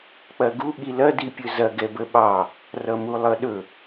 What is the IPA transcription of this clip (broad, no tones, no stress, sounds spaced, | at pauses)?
k͡p ɐ ɡ u ɠ i l ɐ d i pʲ ɵ z ɐ ɡ ɛ b ə ɓ ɑ | r ʌ m u lˠ ʌ ɗ ɵ